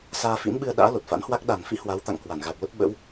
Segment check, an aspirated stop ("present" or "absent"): absent